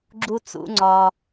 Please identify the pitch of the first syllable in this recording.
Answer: high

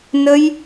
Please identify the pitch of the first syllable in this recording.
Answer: high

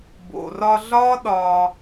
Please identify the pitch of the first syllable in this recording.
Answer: low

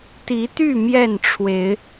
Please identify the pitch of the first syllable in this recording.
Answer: rising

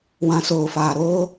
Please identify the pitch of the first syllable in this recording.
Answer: low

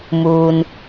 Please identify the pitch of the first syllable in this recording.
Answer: low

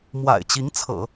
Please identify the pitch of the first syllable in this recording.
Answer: low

